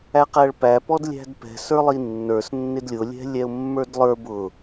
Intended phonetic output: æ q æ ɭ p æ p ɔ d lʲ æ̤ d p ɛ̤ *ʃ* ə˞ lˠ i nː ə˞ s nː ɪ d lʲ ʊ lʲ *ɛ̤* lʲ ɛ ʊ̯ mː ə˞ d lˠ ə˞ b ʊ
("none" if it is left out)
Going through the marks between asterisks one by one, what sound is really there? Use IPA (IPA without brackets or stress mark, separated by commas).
s, ɛ̤